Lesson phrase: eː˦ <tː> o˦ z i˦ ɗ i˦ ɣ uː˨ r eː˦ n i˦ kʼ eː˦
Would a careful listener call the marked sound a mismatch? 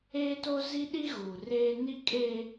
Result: yes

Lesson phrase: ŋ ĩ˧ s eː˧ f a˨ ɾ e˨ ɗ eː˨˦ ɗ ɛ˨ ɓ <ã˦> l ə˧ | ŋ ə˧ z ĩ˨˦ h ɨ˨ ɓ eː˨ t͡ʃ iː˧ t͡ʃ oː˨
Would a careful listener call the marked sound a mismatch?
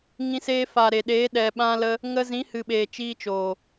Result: yes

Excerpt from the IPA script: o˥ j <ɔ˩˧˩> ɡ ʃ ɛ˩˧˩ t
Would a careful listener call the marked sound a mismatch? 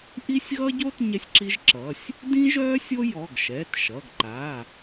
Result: no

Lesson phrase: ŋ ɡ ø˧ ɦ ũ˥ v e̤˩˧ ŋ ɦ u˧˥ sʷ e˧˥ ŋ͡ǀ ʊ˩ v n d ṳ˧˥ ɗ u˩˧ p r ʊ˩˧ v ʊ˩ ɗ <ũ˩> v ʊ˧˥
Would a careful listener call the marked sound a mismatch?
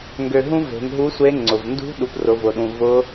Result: no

